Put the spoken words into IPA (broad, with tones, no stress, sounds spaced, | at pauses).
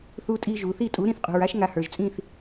θ u˧ tʼ i˧ ʒ u˩ θ i˥˩ tʼ u˩˥ ɾ ĩ˥˩ θ qʼ ṳ˩ ɹ a˥ ʃ ŋ a˧ h ə˞˩ ʒ t͡sʼ ĩ˥˩ θ